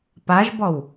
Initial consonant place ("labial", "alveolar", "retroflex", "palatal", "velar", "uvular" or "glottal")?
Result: labial